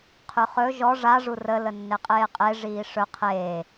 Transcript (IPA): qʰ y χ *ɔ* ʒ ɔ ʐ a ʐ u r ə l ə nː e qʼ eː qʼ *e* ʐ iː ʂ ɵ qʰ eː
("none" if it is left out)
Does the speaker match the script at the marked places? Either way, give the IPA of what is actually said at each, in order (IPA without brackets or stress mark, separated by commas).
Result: ɵ, e